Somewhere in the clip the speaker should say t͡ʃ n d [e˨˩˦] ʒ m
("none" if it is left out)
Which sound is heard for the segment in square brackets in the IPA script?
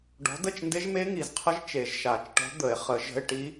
e˦˥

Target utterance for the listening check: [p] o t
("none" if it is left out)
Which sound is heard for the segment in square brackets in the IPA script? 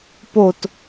p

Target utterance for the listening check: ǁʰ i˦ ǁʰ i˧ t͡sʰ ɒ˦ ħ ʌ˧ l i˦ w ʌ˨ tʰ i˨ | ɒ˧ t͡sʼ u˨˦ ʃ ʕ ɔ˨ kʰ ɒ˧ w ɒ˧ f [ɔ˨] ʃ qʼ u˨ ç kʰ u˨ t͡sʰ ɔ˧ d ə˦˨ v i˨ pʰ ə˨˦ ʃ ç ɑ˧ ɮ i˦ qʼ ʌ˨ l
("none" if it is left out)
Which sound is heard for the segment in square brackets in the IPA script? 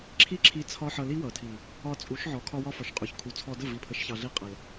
ɔ˨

